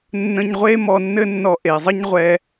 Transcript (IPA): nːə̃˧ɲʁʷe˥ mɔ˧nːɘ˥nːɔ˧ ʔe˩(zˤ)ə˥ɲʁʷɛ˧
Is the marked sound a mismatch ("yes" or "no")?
no